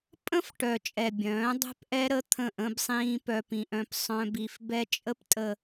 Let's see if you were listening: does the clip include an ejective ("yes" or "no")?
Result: yes